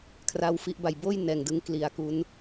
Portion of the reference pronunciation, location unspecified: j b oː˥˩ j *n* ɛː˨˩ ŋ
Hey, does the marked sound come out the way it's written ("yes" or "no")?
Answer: yes